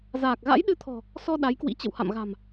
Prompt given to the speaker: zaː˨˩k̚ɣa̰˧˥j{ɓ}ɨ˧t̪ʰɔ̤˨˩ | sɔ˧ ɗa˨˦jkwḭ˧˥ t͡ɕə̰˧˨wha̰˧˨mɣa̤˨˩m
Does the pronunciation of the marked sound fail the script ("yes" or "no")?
yes